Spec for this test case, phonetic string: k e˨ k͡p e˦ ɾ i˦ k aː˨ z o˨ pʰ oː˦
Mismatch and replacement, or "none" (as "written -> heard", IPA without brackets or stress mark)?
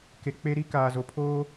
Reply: none